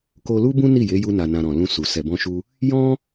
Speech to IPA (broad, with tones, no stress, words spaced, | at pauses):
ko˧lu˦bũ˦ ni˦˨je˨˦ ju˧na˨nã˨ ɾɔ̃˨ lũ˧ su˨ sɛ˨bɔ̃˧ʃu˧ | jɔ̃˦